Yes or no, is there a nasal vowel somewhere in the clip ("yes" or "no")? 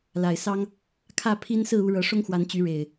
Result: no